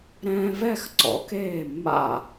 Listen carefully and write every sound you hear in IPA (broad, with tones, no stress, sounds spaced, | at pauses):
ɾ ɛ̃ː˧ v ɛ˥˩ x ǀ ɔ̰˩˥ k eː˥˩ mː a̰˥˩